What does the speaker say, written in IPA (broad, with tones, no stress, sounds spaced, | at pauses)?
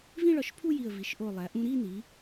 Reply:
v ĩ˥˧ ɭ ɒ˧˩ ʃ pʰ u˥˧ j i˧˩ ə̯ v i˩˧ ʃ ʔ o˧˩ lˠ æ˩˧ ʔ ũ˧ ɾ i˥˧ n i˩˧